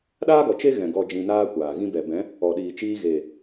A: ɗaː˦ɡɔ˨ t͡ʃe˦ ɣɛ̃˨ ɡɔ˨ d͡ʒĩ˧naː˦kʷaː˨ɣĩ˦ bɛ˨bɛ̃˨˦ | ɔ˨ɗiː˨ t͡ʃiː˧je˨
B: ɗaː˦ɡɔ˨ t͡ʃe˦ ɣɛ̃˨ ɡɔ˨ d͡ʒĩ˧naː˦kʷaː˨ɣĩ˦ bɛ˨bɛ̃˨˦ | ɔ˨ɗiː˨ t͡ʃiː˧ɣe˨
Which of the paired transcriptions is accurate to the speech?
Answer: B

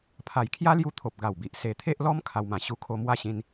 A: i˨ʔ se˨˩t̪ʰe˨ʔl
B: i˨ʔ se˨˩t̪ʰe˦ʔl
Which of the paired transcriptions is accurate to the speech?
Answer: B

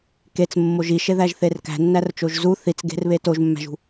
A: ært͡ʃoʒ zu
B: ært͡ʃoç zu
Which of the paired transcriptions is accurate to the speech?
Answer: A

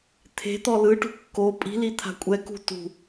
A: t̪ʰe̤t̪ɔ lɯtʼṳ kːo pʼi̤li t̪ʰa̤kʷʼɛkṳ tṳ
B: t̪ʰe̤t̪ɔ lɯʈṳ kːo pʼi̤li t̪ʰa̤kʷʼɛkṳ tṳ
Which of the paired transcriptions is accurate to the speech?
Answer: B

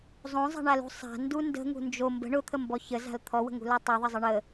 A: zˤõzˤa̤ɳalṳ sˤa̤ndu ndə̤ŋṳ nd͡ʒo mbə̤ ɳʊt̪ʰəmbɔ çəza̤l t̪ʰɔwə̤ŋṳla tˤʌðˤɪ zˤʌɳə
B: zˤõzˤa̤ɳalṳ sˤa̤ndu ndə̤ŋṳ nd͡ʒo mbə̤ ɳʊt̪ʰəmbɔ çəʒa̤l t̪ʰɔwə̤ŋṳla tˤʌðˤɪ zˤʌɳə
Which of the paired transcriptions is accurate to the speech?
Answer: A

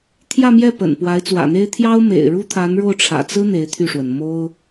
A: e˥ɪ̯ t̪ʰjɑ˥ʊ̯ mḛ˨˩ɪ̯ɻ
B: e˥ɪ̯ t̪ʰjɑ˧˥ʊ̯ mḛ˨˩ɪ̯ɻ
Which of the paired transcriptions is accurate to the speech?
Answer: A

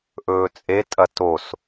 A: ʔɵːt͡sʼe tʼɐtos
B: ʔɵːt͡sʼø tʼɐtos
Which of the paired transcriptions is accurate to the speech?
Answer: A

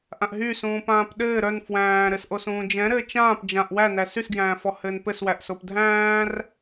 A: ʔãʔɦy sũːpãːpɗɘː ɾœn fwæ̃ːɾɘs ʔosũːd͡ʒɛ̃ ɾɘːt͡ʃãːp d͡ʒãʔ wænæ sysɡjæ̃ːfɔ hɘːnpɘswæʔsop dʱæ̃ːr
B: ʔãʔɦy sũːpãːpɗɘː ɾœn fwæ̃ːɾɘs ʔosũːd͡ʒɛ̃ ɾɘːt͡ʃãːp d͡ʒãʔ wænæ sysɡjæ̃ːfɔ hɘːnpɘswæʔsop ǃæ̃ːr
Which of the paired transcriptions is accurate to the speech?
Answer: A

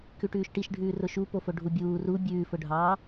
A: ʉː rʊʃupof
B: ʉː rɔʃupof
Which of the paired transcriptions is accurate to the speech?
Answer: A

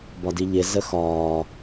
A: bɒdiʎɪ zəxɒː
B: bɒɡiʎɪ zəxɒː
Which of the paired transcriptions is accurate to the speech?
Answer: A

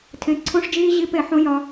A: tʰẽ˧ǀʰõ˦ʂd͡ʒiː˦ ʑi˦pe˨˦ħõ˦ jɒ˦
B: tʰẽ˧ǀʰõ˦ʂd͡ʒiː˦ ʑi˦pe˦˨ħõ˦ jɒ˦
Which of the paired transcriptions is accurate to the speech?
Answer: B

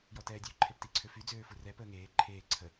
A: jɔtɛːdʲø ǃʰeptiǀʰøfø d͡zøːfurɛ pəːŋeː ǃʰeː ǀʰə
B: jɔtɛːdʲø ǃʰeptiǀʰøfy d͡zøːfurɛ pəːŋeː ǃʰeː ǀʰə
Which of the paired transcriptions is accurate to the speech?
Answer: B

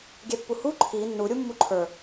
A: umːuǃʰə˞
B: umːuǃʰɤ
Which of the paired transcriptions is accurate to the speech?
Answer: A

